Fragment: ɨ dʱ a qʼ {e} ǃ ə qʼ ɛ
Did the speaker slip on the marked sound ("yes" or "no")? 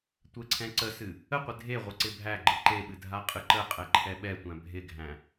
yes